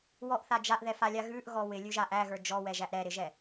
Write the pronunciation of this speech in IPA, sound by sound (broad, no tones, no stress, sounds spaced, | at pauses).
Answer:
w ɔ ʔ θ a d͡ʒ a ʔ ð ɛ f a lʲ a ɣ ʉ ʔ ɣ ɔ w ɪ lʲ ʉ ʒ a ʔ æ ɣ ə˞ d͡ʒ ɔ w ɛ ʒ æ ʔ ɾ ɛ ɾ ɪ ʒ ɛ